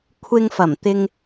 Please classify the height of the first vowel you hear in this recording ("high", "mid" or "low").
high